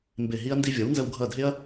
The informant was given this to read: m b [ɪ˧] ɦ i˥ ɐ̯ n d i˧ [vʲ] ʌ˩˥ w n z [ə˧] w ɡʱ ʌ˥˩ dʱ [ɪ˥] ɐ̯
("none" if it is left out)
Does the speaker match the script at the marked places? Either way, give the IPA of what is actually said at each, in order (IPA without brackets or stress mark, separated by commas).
ɪ˥˩, vʲ, ə˧, ɪ˥